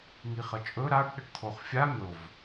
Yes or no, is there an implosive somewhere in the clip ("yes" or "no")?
yes